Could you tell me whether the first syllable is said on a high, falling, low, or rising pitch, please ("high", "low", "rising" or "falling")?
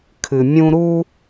low